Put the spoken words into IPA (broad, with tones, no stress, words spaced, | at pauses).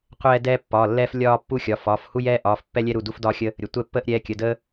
qʷɛː˦ dɛː˦ pːɒ˩˧˩lːɛ˦f lʲɒː˦ pːu˦xʲɒ˩˧˩fɒ˩˧˩f hu˦jɛː˦ʔɒː˩˧˩f pːɛ˦lʲɛ˦ɾu˩˧˩ du˦fdɒː˦xʲə˦ | ɾʲə˩˧˩tʷɛ˦pːəː˦ʔ ɾʲɛː˩˧˩kʲə˩˧˩dəː˦